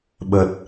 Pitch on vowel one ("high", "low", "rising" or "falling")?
low